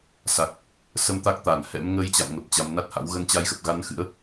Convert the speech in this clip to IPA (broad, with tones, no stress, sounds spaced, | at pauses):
s a˨˩ k̚ | s ə˧ m t̪ a˦˥ k̚ t̪ a˧˩ n h ɛ̰˧˥ m ŋ əː˧ j t͡ɕ a̰˧˨ m ŋ ə˨˩ p̚ t͡ɕ a˨˦ m n a˦˥ t̚ h a̰˧˥ w ɣ ə˨˦ n t͡ɕ a˧ j x ə˨˩ p̚ ɣ a˨˦ n x ɨ̰˧˥ ə̯